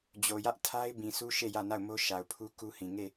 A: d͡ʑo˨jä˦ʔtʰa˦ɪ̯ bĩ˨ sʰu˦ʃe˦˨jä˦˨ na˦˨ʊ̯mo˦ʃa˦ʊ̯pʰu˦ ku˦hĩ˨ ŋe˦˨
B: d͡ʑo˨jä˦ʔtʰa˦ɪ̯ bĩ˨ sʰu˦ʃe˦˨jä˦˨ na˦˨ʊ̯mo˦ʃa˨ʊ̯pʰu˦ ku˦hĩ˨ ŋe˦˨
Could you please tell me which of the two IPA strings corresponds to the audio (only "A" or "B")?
B